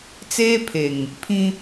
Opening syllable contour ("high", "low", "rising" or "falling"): high